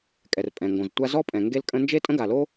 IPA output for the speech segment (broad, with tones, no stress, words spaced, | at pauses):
kʼɛ˩rpʼɛ̃˩ŋɡõ˩ztʷa˥ zɔ˥pʼɛ̃˩ ŋɡe˥lkʼə̃˥ nd͡ʒe˥tʼə̃˥ɡa˩lo˥